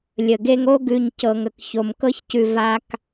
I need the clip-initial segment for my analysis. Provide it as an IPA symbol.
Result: lʲ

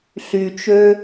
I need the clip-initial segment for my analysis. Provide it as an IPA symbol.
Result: ɬ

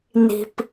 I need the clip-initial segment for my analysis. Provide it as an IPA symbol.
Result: n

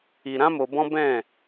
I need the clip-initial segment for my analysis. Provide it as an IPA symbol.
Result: i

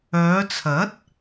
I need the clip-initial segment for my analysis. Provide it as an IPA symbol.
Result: œː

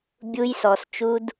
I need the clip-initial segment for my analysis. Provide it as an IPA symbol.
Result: bʲ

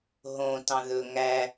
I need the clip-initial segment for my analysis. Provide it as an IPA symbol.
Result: ɦ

